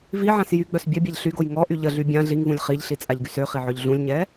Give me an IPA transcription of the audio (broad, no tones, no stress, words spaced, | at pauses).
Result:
viʕãs jyɡ͡bœs bʲœbʲaʎ ɬyɡoj ŋɔʔy ʎəɮy bʲã ɮiŋvũlʲ χiʎɬit͡sʼaʎɡys øχiʕœʎ ɮũlʲɲɛ